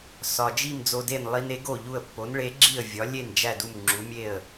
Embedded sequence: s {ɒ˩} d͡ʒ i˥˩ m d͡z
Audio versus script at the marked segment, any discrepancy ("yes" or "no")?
no